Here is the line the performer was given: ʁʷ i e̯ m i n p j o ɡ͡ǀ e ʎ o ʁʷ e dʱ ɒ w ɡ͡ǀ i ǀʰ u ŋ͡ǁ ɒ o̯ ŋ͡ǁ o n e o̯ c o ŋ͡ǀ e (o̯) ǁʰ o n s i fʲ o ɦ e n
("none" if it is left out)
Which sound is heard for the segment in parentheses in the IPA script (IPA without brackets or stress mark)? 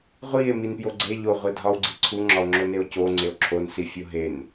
o̯